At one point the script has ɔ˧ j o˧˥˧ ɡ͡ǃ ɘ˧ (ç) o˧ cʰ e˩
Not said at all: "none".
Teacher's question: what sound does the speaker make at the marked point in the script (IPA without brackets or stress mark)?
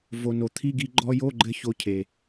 ç